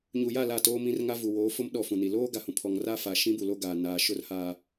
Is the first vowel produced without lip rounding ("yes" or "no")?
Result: no